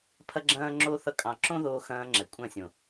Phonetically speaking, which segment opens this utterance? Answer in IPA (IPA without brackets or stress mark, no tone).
pʰ